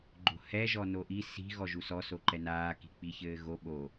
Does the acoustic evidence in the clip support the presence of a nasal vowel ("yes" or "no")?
no